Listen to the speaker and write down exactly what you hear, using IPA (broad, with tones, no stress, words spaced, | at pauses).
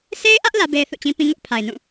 se˦ɪ̯ʔä˦ʔ lä˦be˦ɪ̯ θṵ˦˨t͡ɕĩ˦pĩ˦ ŋʊ˦ʔpʰa˨ɪ̯nũ˦˨